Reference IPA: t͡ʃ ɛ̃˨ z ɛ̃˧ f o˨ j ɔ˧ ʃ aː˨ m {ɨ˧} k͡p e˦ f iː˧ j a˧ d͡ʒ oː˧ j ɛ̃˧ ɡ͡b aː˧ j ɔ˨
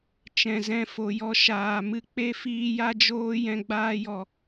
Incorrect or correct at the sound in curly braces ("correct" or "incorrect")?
correct